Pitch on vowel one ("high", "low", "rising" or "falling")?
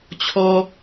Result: high